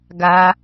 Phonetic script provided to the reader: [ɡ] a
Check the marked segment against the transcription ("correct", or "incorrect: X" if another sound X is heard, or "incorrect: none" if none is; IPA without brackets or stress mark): correct